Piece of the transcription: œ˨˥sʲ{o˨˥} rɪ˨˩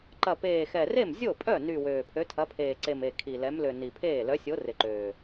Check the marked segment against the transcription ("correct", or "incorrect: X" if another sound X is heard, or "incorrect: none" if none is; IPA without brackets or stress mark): correct